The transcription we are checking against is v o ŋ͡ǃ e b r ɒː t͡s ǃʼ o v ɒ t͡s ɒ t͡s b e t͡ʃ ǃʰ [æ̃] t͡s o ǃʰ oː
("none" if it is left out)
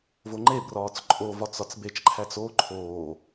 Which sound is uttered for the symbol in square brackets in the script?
æ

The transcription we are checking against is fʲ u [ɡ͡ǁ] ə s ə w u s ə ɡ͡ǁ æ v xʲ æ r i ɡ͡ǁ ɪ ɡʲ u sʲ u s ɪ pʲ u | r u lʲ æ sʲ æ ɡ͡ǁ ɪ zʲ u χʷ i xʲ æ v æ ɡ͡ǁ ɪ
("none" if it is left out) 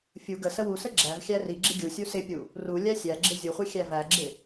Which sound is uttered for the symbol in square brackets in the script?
ɡ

